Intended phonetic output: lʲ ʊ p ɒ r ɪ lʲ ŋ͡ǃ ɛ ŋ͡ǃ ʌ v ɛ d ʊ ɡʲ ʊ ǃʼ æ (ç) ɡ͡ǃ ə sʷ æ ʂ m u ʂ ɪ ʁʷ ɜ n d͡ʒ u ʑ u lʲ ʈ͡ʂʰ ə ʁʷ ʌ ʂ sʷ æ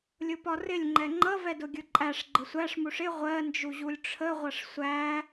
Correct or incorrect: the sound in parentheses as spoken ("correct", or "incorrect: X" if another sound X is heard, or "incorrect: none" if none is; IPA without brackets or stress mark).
incorrect: ʂ